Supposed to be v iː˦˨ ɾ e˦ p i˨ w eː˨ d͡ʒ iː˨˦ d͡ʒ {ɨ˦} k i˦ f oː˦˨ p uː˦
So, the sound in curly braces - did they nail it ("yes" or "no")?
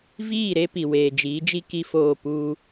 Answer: no